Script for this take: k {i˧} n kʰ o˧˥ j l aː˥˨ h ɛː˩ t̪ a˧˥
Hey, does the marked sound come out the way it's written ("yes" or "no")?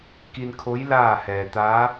yes